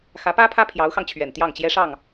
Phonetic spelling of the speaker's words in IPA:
x ä˧˥ p ä˥ pʰ ä˥ pʰ j ɑ˧˥ ʊ̯ x ɑ˧ ŋ t͡ɕʰ ɥ ɛ˨˩ n t̪ j ɑ˥˩ ŋ t͡ɕ j ɛ˥ ʂ ɑ˥˩ ŋ

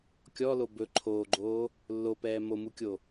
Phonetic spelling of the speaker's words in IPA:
kʲ ɔ l o b ɵ ǃʰ oː ɡ͡ǃ oː | lː o p ɛː m o m u kʲ o

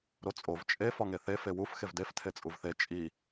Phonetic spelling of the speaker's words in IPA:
ɾ o t͡sʼ o v t͡ʃʼ e f ɒ ŋ e θ e f e w u f x e v d e f tʰ e t͡sʼ u v θ e t͡ʃʼ i

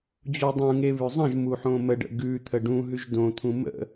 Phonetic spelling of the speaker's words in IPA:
d͡ʑ o dˤ ũ ŋ e β ʉ zˤ ə̃ ʒ m u ħ õ m ə ɖ ə̰ ɡ ʉ t̪ʰ ə ɖ ũ ɦ ʉ ʒ d õ t̪ʰ ũ m ə̰

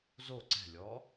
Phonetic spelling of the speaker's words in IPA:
z o ǀ ɛ̤ lʲ ɔ

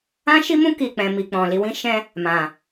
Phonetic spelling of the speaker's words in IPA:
ã˦ ʃ i˦ m ũ˦ k i˦˨ k͡p ɛ̃˧ m i˧ k͡p ɔ̃˨ l i˨˦ w ĩ˦ ʃ ɛ̃˦ | m ã˨

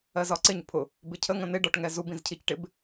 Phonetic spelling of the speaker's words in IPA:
ɜ z ɒ ǀ ɪ ɲ pʰ ʊ | b ɪ cʰ ə ŋ ə̃ n ɪ ɖ ɒ ʈ ŋ ɛ z u b ĩ z cʰ i c ʈ ɪ b

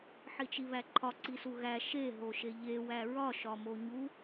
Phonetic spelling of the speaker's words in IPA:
ħ i t͡ʃ i β æ ǃʰ ɒ ǀ i s u ɣ æ ʃ e ɦ o ʃ e ʎ e w æ ɹ ɒ ʃ ɒ m o ɲ u

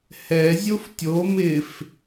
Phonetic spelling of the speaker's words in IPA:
h ɛ zʲ o f tʲ o m ɪ f

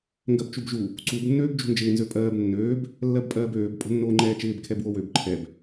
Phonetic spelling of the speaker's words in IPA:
ŋ ɡ ɜ b t͡ʃ u b ʒ u | ǀ u b nː øː b d͡ʒ ṳ n d͡ʒ ɪː n z ø pʼ ɜː b nː øː b | lː ɜ b pʼ ɜː b øː b pʼ o̤ nː oː ŋ͡ǃ ɛː t͡ʃ ɪː b kʰ ɛ b w o w ø b ǃʰ ɛ b

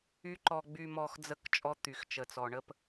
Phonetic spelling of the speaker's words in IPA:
y˦ ǃ ɔ˧ ɡ͡b y˧ m ɔ˧ x d͡z ə˦˨ k t͡ʃʼ ɔ˦ t̪ y˨ x t͡ʃ ə˨ t͡s ɔ˨ ɳ ə˦ p

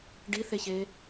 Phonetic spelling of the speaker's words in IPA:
ɖ i θ e ç e

